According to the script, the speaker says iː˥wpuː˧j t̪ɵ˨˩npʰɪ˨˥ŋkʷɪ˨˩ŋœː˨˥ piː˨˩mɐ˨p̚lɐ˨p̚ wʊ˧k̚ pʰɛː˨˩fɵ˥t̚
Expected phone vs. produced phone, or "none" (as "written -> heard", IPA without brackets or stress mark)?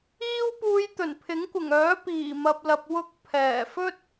none